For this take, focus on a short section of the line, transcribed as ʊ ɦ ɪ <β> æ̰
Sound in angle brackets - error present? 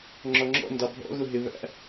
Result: no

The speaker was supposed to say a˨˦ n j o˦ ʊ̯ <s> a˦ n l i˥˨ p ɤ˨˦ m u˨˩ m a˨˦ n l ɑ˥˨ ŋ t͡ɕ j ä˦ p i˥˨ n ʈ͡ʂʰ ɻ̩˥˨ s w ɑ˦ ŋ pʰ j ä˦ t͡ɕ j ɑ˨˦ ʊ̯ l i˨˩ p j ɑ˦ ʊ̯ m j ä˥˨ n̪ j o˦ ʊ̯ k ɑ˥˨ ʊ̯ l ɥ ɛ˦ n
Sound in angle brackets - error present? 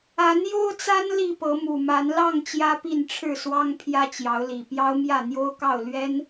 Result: yes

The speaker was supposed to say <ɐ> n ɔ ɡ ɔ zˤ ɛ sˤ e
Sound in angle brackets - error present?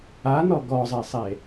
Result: yes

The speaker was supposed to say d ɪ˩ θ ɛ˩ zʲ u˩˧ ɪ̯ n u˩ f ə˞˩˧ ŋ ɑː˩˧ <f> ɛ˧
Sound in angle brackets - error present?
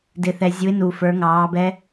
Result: yes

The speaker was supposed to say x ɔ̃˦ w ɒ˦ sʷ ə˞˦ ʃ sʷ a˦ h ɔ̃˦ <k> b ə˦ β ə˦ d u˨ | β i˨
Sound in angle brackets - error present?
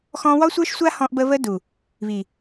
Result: yes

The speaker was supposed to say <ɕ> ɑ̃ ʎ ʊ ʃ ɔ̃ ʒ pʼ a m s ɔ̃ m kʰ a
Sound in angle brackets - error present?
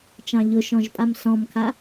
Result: yes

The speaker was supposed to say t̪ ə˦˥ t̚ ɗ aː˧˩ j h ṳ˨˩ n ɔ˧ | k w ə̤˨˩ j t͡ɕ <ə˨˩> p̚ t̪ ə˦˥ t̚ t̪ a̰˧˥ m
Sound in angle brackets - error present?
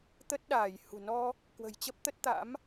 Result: yes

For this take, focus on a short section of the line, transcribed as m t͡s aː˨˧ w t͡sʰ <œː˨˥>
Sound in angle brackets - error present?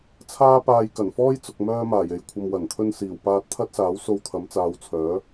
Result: no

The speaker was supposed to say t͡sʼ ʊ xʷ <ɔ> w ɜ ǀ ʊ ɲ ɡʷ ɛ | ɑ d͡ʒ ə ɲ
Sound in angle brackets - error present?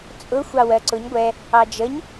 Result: yes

